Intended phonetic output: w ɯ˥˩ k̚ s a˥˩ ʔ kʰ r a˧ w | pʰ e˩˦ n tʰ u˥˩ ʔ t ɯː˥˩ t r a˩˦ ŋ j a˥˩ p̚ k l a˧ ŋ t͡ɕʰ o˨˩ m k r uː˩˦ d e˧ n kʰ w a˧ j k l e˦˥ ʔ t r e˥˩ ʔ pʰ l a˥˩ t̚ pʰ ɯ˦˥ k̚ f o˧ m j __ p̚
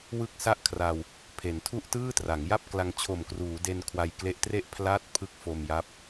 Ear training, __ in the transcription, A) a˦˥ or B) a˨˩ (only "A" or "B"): A